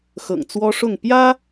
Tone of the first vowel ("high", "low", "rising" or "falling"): low